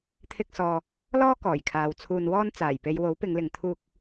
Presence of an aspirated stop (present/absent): present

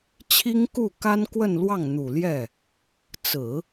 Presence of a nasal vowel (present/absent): absent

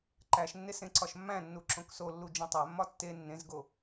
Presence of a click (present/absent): present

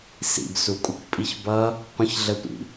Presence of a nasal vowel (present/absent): present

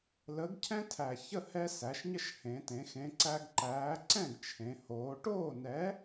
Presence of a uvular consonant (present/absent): absent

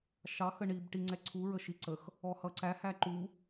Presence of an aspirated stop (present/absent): present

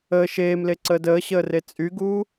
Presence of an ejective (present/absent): present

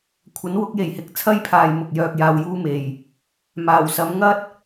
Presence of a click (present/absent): absent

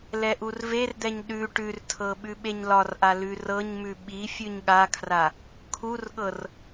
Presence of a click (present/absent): absent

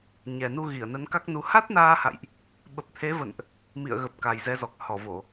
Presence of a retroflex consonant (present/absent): absent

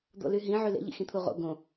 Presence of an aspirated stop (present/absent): present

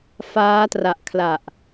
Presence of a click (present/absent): absent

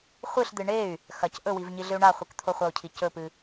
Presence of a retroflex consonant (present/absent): present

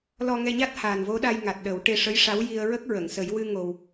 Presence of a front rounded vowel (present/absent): absent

